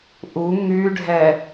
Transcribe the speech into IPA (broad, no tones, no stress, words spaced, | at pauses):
ʔu ŋyɖʱɛ